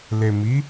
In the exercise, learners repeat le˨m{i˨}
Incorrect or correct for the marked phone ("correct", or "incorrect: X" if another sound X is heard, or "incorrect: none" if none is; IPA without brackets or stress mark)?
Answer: incorrect: i˨˦